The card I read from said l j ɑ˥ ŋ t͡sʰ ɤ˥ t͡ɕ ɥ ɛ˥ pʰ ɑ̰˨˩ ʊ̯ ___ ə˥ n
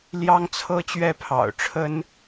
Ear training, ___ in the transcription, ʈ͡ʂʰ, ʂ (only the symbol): ʈ͡ʂʰ